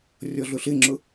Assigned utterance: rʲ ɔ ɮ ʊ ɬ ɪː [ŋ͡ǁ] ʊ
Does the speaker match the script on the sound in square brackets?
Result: yes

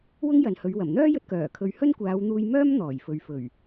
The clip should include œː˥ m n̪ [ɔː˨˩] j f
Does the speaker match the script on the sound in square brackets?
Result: yes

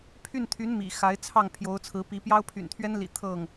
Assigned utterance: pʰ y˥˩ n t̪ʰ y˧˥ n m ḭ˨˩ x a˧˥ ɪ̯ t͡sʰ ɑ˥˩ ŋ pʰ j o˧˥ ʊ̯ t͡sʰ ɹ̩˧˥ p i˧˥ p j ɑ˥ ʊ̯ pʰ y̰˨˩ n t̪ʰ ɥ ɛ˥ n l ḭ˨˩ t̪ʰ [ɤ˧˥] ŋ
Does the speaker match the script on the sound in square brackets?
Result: no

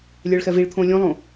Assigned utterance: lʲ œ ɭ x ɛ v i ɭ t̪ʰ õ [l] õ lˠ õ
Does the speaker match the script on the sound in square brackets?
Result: no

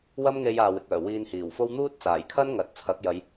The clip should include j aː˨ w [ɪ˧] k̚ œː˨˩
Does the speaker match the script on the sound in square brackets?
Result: no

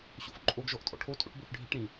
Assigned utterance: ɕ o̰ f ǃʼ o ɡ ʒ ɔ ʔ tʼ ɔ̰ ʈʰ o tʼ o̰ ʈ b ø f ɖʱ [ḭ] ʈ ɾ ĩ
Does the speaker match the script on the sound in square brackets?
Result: yes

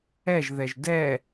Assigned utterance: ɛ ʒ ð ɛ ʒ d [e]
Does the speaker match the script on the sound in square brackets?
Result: no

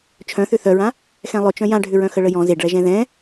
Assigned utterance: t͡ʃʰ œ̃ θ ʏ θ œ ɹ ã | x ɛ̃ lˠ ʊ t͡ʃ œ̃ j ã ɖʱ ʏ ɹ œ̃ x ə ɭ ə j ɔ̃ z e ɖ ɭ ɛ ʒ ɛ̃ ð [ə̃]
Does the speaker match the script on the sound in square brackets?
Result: no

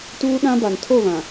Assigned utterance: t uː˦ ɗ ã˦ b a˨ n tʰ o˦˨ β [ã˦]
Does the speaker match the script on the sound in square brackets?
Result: no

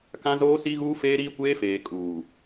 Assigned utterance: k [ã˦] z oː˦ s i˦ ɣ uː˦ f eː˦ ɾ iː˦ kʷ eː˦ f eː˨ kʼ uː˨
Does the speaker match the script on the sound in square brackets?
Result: yes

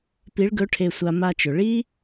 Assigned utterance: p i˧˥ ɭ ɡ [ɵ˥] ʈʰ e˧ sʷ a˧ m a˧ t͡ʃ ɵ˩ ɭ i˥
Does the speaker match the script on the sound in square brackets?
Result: no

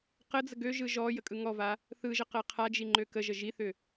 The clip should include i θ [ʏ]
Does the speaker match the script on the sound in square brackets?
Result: yes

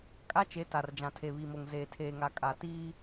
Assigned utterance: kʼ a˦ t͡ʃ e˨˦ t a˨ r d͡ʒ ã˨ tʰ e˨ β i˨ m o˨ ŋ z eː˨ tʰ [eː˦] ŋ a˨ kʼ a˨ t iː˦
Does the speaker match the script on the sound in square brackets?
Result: no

